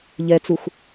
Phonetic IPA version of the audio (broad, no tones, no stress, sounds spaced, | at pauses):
ʎ ɛ t͡s u x